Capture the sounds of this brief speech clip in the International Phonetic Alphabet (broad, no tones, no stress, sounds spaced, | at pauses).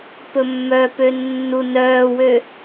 p ɵ mː œ p ø nː u n œː w ø